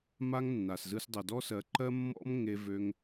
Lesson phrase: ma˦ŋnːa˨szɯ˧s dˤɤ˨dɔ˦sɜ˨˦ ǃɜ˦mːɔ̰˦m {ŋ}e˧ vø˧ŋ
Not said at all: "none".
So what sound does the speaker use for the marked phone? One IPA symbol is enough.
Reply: ŋ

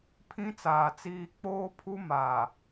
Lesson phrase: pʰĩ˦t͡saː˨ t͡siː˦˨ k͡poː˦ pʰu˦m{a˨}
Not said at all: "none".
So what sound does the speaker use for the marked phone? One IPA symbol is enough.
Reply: aː˨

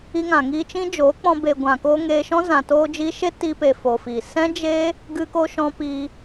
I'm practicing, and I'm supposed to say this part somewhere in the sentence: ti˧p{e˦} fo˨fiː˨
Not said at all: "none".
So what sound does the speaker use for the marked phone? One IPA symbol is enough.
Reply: e˨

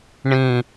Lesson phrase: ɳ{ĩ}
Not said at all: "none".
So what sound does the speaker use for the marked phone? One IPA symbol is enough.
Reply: ĩ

